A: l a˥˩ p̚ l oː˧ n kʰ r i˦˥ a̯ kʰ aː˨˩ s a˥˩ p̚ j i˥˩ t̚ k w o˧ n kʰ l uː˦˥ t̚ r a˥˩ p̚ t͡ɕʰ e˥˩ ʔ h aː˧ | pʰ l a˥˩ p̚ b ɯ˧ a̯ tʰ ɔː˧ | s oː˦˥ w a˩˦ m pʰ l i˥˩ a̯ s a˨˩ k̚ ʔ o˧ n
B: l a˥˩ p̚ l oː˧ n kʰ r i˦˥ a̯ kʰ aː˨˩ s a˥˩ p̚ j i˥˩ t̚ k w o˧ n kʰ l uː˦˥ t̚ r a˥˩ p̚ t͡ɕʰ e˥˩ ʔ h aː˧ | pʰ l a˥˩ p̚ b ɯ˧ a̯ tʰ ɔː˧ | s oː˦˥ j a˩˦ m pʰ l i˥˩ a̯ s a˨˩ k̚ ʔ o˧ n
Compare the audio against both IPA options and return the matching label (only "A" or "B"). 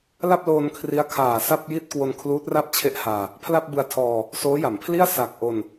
B